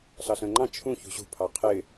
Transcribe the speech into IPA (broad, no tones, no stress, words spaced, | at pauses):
ɬɑɬə̃ːŋ͡ǃɑ̃ t͡ʃʰũ çṳɕṳ pʰɑqʰɪ